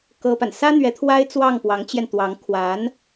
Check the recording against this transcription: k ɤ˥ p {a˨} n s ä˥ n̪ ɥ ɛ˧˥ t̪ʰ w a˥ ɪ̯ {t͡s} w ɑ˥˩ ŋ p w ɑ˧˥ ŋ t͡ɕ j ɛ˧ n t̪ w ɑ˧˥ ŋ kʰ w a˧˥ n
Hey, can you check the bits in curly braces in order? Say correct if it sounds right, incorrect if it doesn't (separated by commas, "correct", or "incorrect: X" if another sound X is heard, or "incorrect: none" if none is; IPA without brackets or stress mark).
correct, correct